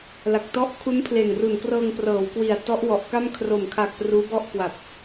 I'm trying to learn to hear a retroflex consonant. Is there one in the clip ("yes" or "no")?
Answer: no